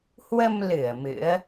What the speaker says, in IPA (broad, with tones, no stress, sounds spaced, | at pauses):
h w ə˧ m l ɨ˧˩ ə̯ m ɨ̰˧˥ ə̯